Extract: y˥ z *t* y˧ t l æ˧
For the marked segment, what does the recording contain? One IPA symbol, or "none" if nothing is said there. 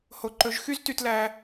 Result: t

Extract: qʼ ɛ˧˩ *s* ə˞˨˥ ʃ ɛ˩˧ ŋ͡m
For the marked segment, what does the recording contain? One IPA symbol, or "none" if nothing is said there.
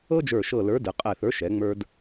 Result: θ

